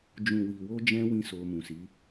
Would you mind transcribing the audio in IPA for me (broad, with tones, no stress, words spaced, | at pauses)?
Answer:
d͡ʒũ˨wi˨wo˧d͡ʒɛ̃˧ wĩ˦so˧mũ˨si˨˦